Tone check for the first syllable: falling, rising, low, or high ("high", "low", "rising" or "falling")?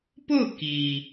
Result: falling